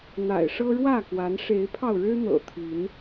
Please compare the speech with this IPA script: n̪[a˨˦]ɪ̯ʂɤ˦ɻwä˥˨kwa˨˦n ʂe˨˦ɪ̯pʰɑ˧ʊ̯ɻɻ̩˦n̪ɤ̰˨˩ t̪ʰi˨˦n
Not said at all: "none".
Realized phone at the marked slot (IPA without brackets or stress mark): a̰˨˩